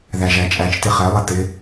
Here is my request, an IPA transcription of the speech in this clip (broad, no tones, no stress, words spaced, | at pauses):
ðæʒæt͡ʃʼæt͡ʃ tɪχɛ lˠʌtɪ